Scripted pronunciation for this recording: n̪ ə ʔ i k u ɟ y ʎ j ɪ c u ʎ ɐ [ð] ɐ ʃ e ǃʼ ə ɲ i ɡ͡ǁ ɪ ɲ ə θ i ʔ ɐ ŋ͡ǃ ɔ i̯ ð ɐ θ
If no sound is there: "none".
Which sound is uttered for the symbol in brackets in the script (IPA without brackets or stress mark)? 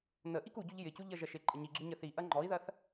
ʒ